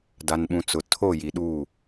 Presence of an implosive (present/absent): present